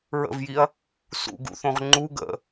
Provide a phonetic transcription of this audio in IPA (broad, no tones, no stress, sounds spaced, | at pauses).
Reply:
ɹ ə̰ v j i ɐ̯ | s ṵ ɡ ṵ θ õ ʁ ŋ͡ǃ u ɡ ə̰